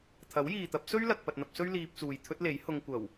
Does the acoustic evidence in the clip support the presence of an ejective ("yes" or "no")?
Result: no